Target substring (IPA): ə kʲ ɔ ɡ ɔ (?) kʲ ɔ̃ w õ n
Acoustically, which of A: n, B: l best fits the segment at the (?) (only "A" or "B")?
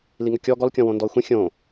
B